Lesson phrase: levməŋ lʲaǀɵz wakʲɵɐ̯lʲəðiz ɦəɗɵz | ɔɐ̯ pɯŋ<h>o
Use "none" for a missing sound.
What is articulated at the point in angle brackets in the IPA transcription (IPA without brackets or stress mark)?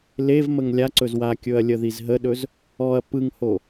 h